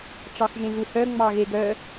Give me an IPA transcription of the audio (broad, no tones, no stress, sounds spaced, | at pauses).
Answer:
ʈ͡ʂ ɑ x ʒ ẽ ɣ u h œ ŋ͡m ɑ ɣ e ɡ œ